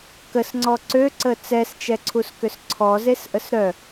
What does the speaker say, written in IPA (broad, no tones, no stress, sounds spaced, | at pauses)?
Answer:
k ə s ŋ͡ǀ ɔ ǀ ø ǀ ə t͡s ɛ s t͡ʃ ɛ ǀʰ u s k ʏ s ǀʰ ɔ z e s ʔ ə s ɾ œ